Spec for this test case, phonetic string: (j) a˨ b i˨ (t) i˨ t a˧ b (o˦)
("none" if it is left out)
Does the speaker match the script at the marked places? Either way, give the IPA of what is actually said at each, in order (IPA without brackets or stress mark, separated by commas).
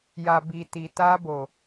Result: j, t, o˨